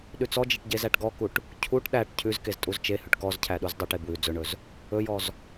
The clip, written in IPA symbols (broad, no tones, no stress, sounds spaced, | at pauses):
ɗ ʉ t͡s ɔ d͡ʒ i ʈ ɟ e z æ ʈ ɡ ɔ k u ʈ | cʰ u ʈ ɗ æ ʈ cʰ ʉ z k e z tʼ u z t͡ʃ e h ʉ ʈ k ɔ z cʰ æ ɗ u z dˤ u ʈ e b w ʉ d͡z ɵ ɳ ɵ z | ɵ j ɔ z